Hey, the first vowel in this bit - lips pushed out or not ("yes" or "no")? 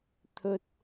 yes